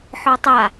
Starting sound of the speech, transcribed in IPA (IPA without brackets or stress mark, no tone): ħ